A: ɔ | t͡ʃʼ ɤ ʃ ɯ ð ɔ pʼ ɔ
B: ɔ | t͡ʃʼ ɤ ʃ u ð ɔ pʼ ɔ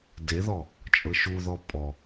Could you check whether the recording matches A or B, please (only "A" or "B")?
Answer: B